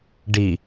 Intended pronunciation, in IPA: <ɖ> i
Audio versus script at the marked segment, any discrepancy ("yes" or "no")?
no